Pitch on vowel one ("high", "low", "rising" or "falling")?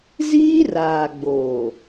high